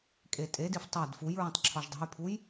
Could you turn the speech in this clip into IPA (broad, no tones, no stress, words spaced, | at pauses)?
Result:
kʼetʼedif tˤæd fujɹõtˤ ǁʰɒʒdˤo̤jpʰuj